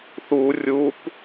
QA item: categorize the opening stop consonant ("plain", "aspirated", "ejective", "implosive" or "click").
plain